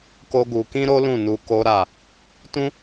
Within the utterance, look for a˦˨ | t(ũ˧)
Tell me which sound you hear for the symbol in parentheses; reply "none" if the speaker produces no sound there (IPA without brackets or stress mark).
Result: ũ˦